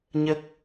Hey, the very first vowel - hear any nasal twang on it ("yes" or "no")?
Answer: no